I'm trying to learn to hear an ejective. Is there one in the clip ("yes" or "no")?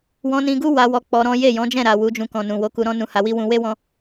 no